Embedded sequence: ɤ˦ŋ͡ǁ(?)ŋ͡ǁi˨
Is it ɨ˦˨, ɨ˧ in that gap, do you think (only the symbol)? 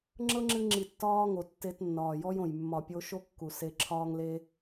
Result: ɨ˧